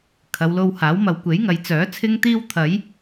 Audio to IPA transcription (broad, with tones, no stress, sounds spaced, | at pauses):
kʰ ɐ˨˧ w l o˧ w h aː˨˥ w m ɐ˨ w kʷ e˨˥ j ŋ ɐ˨ j t͡s œː˨˥ t͡sʰ ɪ˧ ŋ t̪ iː˧ w t̪ʰ ɐ˨˧ j